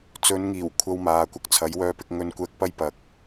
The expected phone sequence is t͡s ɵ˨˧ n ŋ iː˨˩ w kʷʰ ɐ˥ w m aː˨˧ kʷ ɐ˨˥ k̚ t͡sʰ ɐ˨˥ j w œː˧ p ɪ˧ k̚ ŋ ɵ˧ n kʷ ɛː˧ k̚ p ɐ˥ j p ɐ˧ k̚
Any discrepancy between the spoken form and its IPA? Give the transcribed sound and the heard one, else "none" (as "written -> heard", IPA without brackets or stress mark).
none